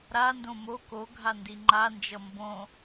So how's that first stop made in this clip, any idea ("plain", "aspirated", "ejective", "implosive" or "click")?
plain